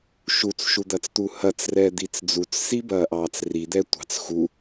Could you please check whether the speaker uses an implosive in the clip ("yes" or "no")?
no